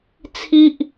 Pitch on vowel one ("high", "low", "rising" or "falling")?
high